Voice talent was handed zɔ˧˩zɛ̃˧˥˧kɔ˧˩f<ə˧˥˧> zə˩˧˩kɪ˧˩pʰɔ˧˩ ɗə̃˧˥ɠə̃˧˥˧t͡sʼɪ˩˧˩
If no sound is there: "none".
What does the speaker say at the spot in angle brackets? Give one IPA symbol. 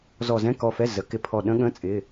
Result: ɛ˧˥˧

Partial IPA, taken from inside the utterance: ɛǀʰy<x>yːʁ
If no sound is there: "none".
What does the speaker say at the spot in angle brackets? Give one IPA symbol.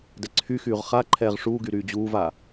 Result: x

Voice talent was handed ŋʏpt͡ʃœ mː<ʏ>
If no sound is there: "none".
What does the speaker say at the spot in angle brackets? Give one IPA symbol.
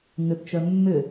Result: ʏ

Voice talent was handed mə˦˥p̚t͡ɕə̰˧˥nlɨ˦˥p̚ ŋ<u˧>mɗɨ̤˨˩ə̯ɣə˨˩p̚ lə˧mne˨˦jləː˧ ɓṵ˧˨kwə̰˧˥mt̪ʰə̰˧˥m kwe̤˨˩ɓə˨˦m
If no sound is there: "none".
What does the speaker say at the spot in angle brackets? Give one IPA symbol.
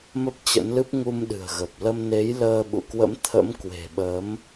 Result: u˧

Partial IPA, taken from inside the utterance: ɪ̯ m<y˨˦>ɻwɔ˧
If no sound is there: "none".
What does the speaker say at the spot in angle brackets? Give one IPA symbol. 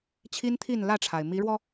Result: i˨˦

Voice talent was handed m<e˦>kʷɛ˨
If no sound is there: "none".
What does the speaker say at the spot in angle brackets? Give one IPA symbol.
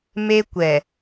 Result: e˦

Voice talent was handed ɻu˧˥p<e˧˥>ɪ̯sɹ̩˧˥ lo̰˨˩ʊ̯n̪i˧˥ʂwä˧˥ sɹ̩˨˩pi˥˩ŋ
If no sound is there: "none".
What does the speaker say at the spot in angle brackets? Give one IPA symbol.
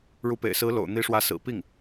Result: ḛ˨˩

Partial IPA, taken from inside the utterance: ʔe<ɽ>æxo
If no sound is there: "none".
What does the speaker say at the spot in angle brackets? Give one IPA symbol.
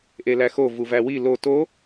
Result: l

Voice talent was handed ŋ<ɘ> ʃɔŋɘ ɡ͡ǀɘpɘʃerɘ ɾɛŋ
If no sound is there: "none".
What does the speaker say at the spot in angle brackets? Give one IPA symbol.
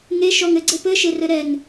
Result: e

